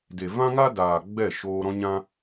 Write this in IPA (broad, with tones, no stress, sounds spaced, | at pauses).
d e˨ v ã˦ ŋ a˦ d aː˨ ɡ͡b ɛ˦˨ ʃ oː˧ ɾ ɔ̃˦ ɲ ã˦